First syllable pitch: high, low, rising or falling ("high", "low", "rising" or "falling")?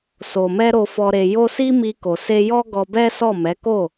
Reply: low